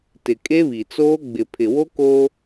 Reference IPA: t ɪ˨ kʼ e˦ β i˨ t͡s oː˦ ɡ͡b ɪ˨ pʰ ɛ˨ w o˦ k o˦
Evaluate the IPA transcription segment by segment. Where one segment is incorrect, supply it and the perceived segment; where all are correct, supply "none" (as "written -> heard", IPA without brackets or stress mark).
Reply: ɛ˨ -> ɪ˨